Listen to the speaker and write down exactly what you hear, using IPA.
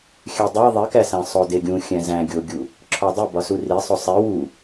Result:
xʲ æ dˤ æ ðˤ i k æ s æ̃ sˤ o d e ɡʲ ũ xʲ æ̃ z æ̃ ɡʲ o ɡʲ u | ǁʰ ɒ dˤ i b ɒ s u r i sˤ o sˤ i w u

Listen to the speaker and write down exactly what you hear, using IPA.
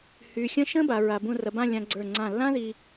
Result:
h yː˧ xʲ ə̃ː˥ ʃ ə̃ː˥ b a˩˧ ɹ a˧ b ũ˥˧ r ɐ˧ b ã˥˧ lʲ ã˧ ɡ͡ǀ ə˞˧˩ ŋ͡ǀ ã˧˩ lː ã˥ ð iː˧

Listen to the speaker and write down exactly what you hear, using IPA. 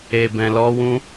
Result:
e˨ b ɛ̃˨ l ɔ˧ w ũ˦

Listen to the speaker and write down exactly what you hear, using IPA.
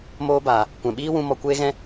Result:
m oː˧ b aː˨ | kʷ ɛ̃˨ ɓ iː˦ w ũ˧ m ɔ˨ kʷ eː˧ ɣ ɛ̃˧

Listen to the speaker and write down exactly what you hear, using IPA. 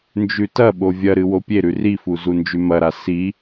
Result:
n d͡ʒ ʉ t ɐ ɓ o vʲ ɐ ɾ ɨ w o pʲ e ɾ ʉ r i f u z u n d͡ʒ ʉ m ɐ ɾ a s i

